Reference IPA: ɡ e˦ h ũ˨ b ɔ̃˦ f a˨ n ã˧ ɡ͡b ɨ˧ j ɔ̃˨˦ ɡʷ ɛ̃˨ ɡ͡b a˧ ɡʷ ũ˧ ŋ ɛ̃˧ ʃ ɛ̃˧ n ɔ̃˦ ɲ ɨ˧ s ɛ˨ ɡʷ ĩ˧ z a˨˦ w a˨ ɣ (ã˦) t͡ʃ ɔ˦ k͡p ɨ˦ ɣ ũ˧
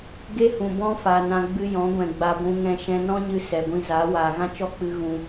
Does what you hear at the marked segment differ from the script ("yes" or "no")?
no